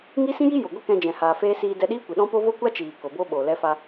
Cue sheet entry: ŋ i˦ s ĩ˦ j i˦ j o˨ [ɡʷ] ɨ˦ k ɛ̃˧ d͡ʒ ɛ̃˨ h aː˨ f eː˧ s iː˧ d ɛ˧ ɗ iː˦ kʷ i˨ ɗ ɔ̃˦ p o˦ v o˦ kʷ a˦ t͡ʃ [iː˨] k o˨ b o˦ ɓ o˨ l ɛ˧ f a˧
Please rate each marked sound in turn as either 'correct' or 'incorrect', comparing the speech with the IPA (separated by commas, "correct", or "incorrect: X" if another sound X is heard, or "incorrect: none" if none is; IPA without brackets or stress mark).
correct, correct